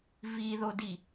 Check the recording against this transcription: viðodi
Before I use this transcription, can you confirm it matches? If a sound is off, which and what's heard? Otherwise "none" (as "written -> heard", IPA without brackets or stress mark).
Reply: none